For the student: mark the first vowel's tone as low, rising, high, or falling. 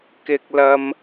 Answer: low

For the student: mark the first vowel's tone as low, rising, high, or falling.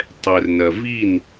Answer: low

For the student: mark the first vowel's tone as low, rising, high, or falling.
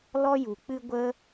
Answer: high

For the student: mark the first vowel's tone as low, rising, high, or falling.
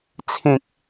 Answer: low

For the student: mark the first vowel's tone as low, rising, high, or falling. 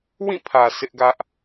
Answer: falling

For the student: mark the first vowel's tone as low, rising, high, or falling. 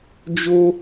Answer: high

